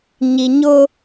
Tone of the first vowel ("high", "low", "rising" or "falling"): low